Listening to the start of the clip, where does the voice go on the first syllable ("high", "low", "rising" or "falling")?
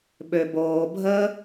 low